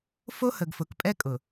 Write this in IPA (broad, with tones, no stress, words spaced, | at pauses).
fo˦hə˨ɡfʊ˨kpʼɛ˦ kʼʊ˨